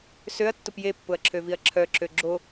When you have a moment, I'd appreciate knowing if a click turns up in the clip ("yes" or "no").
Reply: yes